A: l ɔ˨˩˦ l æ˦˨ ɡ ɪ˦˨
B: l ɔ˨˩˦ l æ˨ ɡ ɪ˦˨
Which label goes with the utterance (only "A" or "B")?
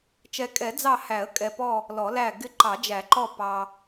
A